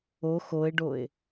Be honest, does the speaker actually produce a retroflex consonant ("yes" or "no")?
yes